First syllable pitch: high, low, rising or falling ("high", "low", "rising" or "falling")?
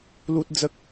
high